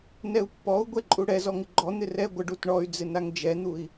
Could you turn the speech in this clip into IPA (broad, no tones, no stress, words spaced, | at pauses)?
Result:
nɛu̯pːɔu̯ ɡʷɛǃʼuɽɛ zɔŋɪɡ͡ǃɔ n̪ɪrɛ ɡʷəɖ utɳɔy̯ d͡zɪnaŋd͡ʒɛn̪ui̯